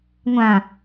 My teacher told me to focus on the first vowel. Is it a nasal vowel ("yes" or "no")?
yes